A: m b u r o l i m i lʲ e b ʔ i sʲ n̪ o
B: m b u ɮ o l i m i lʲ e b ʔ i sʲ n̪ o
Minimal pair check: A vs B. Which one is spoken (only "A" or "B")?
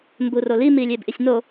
A